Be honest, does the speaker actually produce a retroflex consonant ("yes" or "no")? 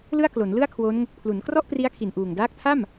no